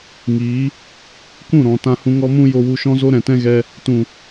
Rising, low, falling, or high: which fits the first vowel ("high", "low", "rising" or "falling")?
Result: rising